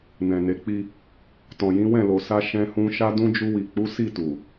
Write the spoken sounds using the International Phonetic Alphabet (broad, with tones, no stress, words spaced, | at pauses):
nɛ̃˨ne˨˦k͡pi˦ | tɔ̃˨jĩ˨˦wɛ̃˦˨lo˨ sa˧ ʃɛ̃˧hũ˧ ʃa˧dũ˧ d͡ʒu˧wi˨k͡pu˨˦ si˦˨ tu˨